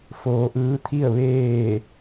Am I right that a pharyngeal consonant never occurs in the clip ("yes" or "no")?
yes